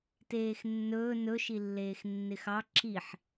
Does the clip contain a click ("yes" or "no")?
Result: yes